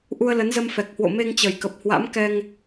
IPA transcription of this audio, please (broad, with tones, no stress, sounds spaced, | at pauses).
ʔ u˧ ə̯ l ə˨˦ n z ə˧ m f ɛ˨˩ k̚ h w o̰˧˨ m e˧ ŋ t͡ɕ ə˨˩ j k ə˨˩ p̚ h w a̰˧˥ m k ɛ˧ ŋ